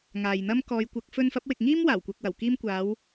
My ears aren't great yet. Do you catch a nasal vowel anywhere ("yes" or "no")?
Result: no